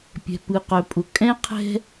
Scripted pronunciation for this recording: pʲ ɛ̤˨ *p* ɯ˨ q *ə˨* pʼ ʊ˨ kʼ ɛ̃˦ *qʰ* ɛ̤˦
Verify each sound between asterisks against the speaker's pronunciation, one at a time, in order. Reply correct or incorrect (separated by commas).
correct, incorrect, correct